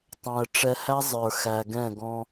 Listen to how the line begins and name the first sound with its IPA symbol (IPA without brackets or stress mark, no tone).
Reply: tˤ